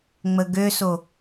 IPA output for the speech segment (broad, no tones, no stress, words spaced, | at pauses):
ŋ͡məɡøso